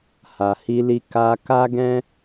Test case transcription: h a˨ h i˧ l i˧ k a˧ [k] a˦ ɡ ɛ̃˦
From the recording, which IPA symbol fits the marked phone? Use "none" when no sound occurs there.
k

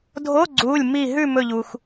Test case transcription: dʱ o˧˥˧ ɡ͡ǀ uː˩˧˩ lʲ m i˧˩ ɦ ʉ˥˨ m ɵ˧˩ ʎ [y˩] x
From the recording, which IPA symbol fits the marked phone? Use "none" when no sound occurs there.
u˩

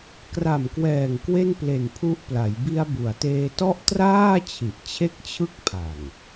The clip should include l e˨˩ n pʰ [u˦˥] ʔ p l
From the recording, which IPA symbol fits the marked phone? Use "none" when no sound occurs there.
u˦˥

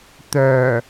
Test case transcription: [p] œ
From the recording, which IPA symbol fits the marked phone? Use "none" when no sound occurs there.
t̪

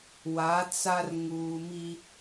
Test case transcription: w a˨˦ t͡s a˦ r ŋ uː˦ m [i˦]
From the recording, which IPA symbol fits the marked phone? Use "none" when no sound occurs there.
i˦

